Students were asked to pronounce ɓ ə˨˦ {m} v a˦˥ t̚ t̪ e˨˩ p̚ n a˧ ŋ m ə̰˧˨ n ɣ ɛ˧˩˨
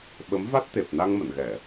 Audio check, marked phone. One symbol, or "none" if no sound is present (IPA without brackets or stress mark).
m